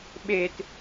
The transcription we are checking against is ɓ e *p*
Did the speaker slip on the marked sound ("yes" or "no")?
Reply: yes